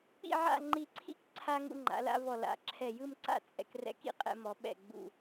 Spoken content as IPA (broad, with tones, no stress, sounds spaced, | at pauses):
k͡p ḭ˥˧ ʕ a̰˥˧ ŋ͡ǃ i˧˩ ǀʰ ḭ˥ k ǀʰ a˧ ŋ ṵ˧ ŋ͡ǃ a̰˩˧ l a̰˧ v ɔ˧˩ l a̰˧˩ ǁʰ ɛ˧˩ j ɯ˥˧ m ǀ a̰˥˧ t͡sʼ ɛ̰˧ k r ɛ̰˧ k ḭ˥ qʼ ɛ̰˧ m ɔ˩˧ ɓ ɛ̰˧˩ ɡ͡b ṵ˧˩